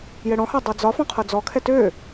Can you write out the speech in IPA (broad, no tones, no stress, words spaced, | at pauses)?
jɛɽɔ̃ha dˤɤd͡zɒfɔ̃ qʰɤd͡zɔkʰɛ tø